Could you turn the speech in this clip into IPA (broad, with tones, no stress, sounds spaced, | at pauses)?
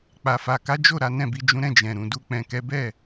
k͡p a˨ f a˨ k a˨˦ d͡ʒ o˦˨ ɾ a˨˦ n ɛ̃˦˨ b i˧ d͡ʒ ũ˦ ɾ ɛ̃˦˨ d͡ʒ ɛ̃˨ ɾ ũ˨ d u˧ k͡p ɛ̃˨ k ɛ˨˦ b ɛ˦˨